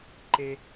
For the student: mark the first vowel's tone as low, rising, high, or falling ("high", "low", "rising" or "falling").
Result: high